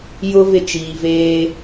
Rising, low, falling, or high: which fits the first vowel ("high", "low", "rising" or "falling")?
high